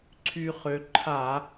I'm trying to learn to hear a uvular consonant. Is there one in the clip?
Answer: yes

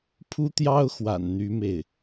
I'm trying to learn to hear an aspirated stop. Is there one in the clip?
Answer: yes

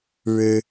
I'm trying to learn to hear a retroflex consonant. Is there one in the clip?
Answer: yes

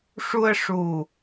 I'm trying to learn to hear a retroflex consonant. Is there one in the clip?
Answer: yes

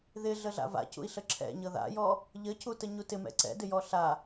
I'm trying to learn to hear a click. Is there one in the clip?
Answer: yes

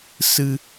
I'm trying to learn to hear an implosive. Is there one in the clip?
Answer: no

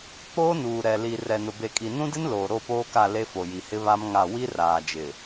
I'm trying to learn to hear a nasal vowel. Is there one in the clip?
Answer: yes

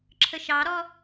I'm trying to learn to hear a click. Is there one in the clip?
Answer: yes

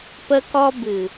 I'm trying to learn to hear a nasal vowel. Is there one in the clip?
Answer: no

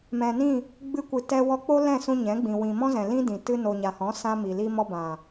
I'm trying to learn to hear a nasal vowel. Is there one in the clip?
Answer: yes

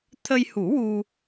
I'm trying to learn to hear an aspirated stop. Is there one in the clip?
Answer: yes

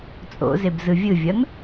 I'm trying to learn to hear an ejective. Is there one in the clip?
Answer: yes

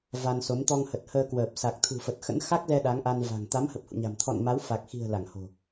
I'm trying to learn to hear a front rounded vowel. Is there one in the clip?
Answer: no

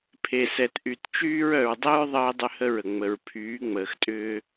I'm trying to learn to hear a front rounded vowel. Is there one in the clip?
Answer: yes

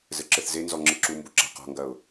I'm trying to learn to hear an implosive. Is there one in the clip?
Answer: no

